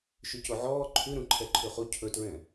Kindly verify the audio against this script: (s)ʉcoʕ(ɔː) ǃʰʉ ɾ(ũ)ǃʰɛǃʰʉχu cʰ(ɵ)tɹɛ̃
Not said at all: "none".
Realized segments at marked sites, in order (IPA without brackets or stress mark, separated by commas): ʃ, ɔː, ũ, ɵ